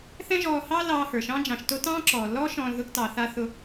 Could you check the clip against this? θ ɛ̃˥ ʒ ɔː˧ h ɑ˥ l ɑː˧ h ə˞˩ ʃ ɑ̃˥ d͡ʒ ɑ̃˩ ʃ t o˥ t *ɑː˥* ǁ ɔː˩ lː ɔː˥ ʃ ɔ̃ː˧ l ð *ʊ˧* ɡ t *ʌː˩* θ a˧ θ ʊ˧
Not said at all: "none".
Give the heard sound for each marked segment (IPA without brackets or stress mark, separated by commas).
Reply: ɑ̃ː˥, ʊ˧, ɑː˩